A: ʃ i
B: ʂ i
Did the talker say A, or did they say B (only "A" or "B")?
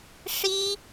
B